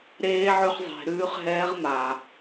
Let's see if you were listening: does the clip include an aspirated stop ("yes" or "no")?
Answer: no